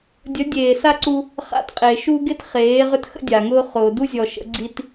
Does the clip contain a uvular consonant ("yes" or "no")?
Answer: yes